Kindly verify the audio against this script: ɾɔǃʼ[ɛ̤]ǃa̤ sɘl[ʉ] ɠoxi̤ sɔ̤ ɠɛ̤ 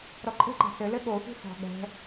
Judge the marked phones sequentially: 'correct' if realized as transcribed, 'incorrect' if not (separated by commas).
incorrect, incorrect